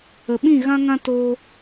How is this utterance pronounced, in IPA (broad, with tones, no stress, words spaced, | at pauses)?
ə˨ɓĩ˦˨ɣã˦ŋã˦ toː˧